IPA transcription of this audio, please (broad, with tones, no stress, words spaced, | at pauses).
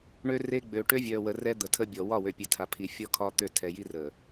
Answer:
ɳø˦re˦ ɡ͡bø˨ ʈø˦vʲœː˨wə˨ rɛ˦d̪ə˨tʰə˦bʲɔ˨ wɒ˦˨wø˨pʲe˨tʰa˨ pʰi˨fʲɔ˦ kʰɒ˦t̪ø˦˨tʰɛ˨ji˦ rə˨